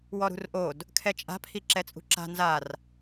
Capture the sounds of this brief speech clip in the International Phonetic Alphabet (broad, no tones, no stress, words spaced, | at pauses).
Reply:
wɔɾṳrʔod | kʰɛt͡ʃʼa̤pʰi ǁɛt͡sʼṳǁa̤ nzar